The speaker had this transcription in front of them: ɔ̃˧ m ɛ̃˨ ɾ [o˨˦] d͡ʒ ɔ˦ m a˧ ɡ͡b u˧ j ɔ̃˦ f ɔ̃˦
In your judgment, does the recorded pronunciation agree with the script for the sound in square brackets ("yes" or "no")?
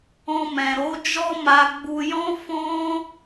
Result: yes